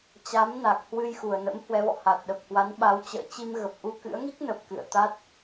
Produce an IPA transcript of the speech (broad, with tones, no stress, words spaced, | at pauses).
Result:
t͡ɕa˨˦mna˨˩k̚ hwɨ˧j xu˨˩ə̯nə̰˧˥m hwɛ˨˦vɔ̰˧˨ ha˨˩t̚ɗə˨˩p̚hwa˨˦nɓa˨˦w t͡ɕə̰ː˧˨ t͡ɕi˧mɣə˨˩p̚ʔu˧ kɨ̰˧˥ə̯ŋi˦˥k̚nə˨˩p̚ kɨ̰˧˨ə̯ t̪a˦˥t̚